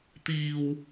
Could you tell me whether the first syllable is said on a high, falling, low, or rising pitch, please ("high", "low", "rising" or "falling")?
high